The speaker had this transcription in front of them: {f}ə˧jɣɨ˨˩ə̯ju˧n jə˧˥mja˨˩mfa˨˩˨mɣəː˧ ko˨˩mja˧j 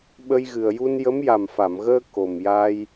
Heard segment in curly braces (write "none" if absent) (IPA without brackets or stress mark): ɓ